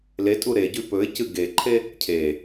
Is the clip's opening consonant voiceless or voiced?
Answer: voiced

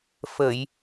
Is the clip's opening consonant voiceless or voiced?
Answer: voiceless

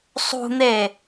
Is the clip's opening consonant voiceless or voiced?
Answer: voiceless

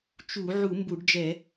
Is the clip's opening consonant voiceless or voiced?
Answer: voiceless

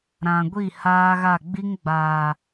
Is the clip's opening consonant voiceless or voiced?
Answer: voiced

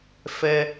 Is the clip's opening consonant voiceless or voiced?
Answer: voiceless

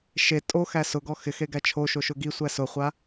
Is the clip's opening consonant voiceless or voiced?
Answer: voiceless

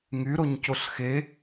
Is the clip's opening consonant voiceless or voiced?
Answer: voiced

